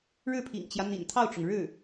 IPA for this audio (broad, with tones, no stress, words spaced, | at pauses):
ɻɻ̩˥˩pʰḭ˨˩ŋt͡ɕjä˦ n̪ḭ˨˩nt̪ʰɑ˥˩ʊ̯ʈ͡ʂʊ˩ŋ ɻɻ̩˥˩